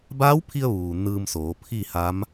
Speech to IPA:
b aː˧˥ w pʰ i˧ ə̯ ʋ uː˩ n ɯː˧ m s oː˩˧ pʰ i˥˨ h a˧˥ m

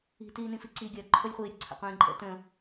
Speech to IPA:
i̤ t iː n ĩ f i ǀ i ɡʲ ɐː ǃʰ ʊ lʲ χʷ iː ɾʲ ʊ ǀʰ ə̰ qʷ ĩː ǃʼ ə̰ t ə̃

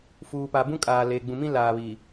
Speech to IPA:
f uː˨ p a˨ b ũ˦ kʼ aː˨ l e˨ ɡ͡b ũ˨ m ĩ˦ l aː˨ β i˨

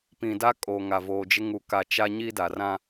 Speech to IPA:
p ĩ˨ d a˦ kʼ o˨ ŋ a˨ v oː˨ d͡ʒ ɪ˦ ŋ u˨ k a˨ t͡ʃ a˦ ɲ i˦ d a˨ r ã˦

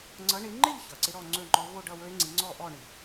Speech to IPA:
ŋ͡ǀ ʌ˨˦ ɳ ɪ˨˦ ŋ͡ǃ ɪ˥˧ ʎ ç ʌ˩ ǀ ɪ˦˥ ɾ ɔ˥˧ ŋ͡ǀ ɵ˥˧ ŋ͡ǃ ɔ˦˥ v o˥˧ ɖ ʌ˥˧ w ɵ˦˥ e̯ ŋ͡ǀ i˨˦ ŋ͡ǀ ɔ˥˧ ʔ ɔ˥˧ ɳ i˩

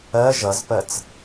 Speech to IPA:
ɜ ʒ ʌ z p ɜ t͡s

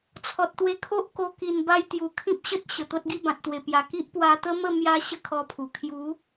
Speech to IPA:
t͡sʰ ɔ˨ t̚ t̪ w e˧ kʰ o˦ ʔ k o˧ k i˨˩ n b a˧ j t̪ j u˨˩ kʰ ĩ˦ p̚ ɕ ə˦ t̚ ɕ ə˨˩ t̪ o˦ t̚ ɡ i˥˧ b ã˨ t̚ t̪ w e˨˩ p j a˨˩ k i˦ ʔ p w a˧ t̪ ə˦ m ə˥˧ m j a˧ ɕ ə˦ kʰ ɔ˧ pʰ u˨˩ kʰ j u˨˦

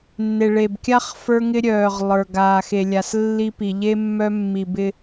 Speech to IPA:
nː e˨ ɭ e˨ b kʲ a˦ χ f ə˞˦ ŋ ɪ˦ ɾʲ œː˨ ʁ lˠ ə˞˨ ɡ aː˨ x e˨ lʲ a˨ s lː i˦ p i˨ ʎ e˦ mː œ˦ mː i˨ b ɪ˦

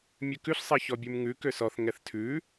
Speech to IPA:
mʲ ʉ k ʉ ɬ sˤ ɛ ç ɔ bʲ ʉ m ŋ ʉ k ø s ɔ θ ŋ ɛ θ tʰ ʉ

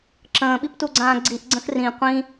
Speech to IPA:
ǁ ə̃ː ɓ i p t u ɡ͡ǀ ãː ɡ͡ǀ i ʔ ɡ͡ǀ ə̃ x r ĩ qʷ ĩ

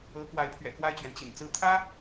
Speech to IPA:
ɤ˧˥ k w a˧˥ ɪ̯ pʰ ɥ ɛ̰˨˩ k w a˥˩ ɪ̯ t͡ɕ ɥ ɛ˩ n t͡ɕ ḭ˨˩ n t͡s ɹ̩˧˥ t̪ʰ ä˥

